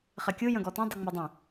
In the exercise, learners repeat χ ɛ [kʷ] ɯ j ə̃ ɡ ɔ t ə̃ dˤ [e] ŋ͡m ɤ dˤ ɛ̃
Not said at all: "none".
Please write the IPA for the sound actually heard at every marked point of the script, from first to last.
kʲ, ɨ

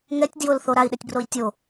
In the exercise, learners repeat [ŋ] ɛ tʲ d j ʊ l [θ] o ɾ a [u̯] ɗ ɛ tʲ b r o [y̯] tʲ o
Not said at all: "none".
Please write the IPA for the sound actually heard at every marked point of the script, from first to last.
ŋ, θ, i̯, i̯

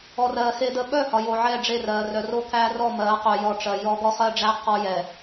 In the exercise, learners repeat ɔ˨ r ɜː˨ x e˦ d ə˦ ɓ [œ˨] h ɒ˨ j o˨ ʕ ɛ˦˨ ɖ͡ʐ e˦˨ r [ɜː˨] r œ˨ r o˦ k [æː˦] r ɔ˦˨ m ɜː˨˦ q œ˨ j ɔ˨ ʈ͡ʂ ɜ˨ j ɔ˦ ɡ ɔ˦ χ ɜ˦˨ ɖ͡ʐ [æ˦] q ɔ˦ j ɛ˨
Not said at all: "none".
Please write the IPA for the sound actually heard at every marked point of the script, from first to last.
œ˦˨, ɜː˨, æː˦, æ˦

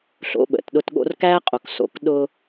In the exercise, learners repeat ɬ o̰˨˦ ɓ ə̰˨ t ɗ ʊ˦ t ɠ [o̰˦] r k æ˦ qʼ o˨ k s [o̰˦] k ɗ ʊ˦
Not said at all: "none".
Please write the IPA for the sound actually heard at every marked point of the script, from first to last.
o̰˦, o̰˨

